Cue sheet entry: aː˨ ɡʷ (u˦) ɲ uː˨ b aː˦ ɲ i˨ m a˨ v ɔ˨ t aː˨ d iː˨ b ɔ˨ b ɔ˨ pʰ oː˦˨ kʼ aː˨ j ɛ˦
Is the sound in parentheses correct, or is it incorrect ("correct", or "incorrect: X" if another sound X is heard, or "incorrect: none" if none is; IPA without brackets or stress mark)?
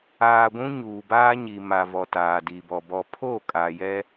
incorrect: ũ˦